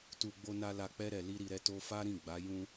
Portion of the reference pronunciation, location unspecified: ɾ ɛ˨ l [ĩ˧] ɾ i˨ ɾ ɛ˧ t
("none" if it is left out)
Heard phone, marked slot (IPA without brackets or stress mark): i˧